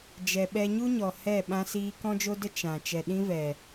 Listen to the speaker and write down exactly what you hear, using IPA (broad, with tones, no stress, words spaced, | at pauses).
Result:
d͡ʒɛ˨ɓɛ˧ɲu˦ɲɔ˨ hɛ˦˨ ɓã˧siː˧ kɔ̃˦d͡ʒo˦də˦ t͡ʃã˨ t͡ʃɛ˨ɗĩ˦vɛ˨